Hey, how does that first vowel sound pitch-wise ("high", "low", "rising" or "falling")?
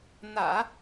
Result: low